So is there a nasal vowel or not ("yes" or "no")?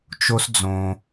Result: yes